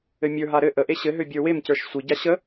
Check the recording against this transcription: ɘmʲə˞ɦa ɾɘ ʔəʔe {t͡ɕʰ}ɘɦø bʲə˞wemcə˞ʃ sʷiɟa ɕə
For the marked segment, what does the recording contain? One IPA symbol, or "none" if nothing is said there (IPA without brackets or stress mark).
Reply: ɕ